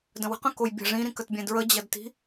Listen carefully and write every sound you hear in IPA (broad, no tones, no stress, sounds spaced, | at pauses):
d ə̃ w ə̤ q ə̃ k o j bʲ ə̤ ʐ ĩ ɾ ĩ k ə t bʲ ɛ̃ d ɹ ə d͡ʑ ɐ d t i̤